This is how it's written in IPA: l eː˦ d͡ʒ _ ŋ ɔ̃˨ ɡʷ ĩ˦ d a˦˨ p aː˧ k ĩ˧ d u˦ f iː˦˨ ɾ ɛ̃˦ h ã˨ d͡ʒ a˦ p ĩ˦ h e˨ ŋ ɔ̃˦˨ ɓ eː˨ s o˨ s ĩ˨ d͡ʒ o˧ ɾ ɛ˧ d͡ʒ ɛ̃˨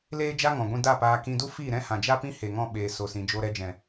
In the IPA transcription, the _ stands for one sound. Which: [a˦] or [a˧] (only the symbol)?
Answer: a˦